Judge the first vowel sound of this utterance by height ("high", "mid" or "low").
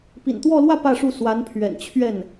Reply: high